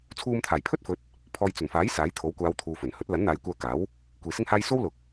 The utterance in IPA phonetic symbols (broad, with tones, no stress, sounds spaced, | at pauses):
t͡sʰ uː˧ m t̪ʰ aː˨˩ j pʰ ɵ˥ t̚ f ɵ˨˥ t̚ | pʰ ɔː˨ j t͡s ɵ˨˩ n f aː˨˥ j s aː˨˥ j t̪ʰ o˨˥ w kʷ aː˨˧ w t̪ʰ uː˨ f ɵ˨˩ n h ɵ˨˥ t̚ l ɐ˨˥ n n̪ aː˨˧ j kʷ œː˧ k aː˨˥ w | kʷ iː˨ s ɪ˥ ŋ h aː˥ j s o˥ w l ʊ˨ k̚